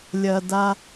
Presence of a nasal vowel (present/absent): absent